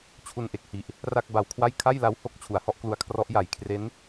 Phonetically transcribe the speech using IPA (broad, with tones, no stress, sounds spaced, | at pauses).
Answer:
t͡ɕʰ u˧ n ʔ e˨˩ k̚ h i˨˩ ʔ | r a˥˩ k̚ b a˧ w kʰ w a˥˩ j kʰ a˥˩ j l a˦˥ w h o˦˥ k̚ t͡ɕʰ u˩˦ a̯ h ɔ˦˥ ʔ k l u˧ a̯ kʰ r ɔ˦˥ ʔ j a˨˩ j kʰ r e˦˥ n